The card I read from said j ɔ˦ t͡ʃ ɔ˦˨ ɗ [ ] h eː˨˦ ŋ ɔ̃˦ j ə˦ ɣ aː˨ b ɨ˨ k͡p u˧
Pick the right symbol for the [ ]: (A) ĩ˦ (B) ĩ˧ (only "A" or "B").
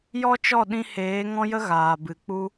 B